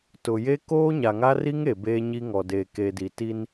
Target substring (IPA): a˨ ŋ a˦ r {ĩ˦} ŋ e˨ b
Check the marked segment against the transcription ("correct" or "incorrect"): incorrect